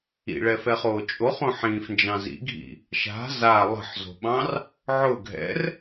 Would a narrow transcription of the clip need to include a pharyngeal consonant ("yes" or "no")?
yes